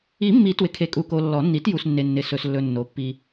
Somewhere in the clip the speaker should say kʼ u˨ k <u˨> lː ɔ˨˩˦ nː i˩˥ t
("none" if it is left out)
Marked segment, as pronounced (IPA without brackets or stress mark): o˨